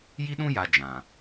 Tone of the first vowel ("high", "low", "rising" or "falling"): high